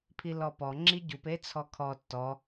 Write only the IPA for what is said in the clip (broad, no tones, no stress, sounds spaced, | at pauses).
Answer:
pʰ i l ɔ p ɔ ŋ͡ǁ i ɟ u p e t͡sʰ ɔ kʰ ɔ tː ɔ